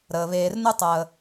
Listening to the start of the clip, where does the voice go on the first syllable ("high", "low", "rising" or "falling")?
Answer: low